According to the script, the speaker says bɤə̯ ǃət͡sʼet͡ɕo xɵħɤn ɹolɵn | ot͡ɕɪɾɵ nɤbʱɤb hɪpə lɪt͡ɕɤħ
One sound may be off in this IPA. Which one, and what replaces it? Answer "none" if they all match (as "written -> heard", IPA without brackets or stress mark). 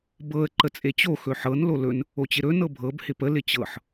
ɹ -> l